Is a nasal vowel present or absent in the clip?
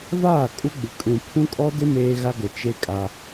present